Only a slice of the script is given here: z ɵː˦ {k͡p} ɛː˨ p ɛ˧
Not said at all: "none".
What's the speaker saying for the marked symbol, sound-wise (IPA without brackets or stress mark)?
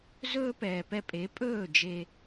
p